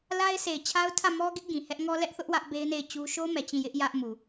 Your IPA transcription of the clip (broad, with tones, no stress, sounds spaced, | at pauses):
l a˦ ɪ̯ s e˨ ɪ̯ t͡ɕʰ a˦ ʊ̯ tʰ ä˦˨ m ɔ˦ ɡ ɪ˦ ʔ ɡ ĩ˨ h ɛ˦ ʔ ŋ ɔ˦ l ɛ˦ ʔ θ ʊ˦ ʔ w ä˦ ʔ b e˦ ɪ̯ n e˦˨ ɪ̯ t͡ɕ u˦ ʃ o˦ m ɛ˨ t͡ɕ ĩ˦˨ j ɪ˦ ʔ j ä˦ ʔ m u˨